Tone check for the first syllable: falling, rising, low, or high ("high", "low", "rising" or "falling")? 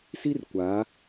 high